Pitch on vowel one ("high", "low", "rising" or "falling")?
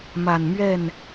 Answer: low